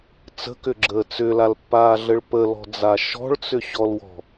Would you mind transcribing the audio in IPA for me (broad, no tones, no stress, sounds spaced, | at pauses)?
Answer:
t͡s ə̤ k ʏ ɡ͡ǁ əː t͡s ʏ l a l pː aː ɮ ə ɭ p ə l ɔ̤ d͡z a ʃ ɔ̤ ɭ t͡s ʏ ɕ ɔ l w ɔ̤